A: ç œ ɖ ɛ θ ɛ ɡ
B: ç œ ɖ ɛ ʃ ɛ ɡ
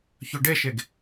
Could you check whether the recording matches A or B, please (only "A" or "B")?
B